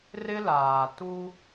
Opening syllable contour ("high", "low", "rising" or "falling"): high